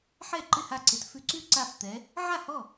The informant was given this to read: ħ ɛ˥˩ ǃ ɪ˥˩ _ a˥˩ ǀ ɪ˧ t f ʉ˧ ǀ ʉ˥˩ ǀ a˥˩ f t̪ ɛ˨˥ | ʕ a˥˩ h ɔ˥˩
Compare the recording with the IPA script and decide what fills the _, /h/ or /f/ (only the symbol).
h